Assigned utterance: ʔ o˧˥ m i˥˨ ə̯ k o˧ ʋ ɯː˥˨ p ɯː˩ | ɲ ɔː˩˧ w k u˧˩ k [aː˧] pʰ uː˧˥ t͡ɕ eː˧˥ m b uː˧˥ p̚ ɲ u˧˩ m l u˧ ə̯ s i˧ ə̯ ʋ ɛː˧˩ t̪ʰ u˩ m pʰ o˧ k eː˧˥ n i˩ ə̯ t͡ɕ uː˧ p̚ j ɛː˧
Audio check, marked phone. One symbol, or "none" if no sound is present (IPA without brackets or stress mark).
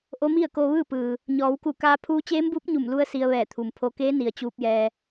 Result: aː˧